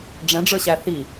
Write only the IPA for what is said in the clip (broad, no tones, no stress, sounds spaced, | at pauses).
ɖ͡ʐ ɛ̃ ɖ͡ʐ ə˞ ɕ æ θ i